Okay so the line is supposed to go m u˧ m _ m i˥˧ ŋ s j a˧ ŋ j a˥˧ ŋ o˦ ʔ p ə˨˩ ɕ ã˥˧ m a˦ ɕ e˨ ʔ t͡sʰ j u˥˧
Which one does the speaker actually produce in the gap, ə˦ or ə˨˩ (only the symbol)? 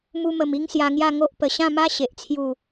ə˨˩